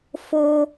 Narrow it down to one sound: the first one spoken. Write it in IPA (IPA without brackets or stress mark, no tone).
f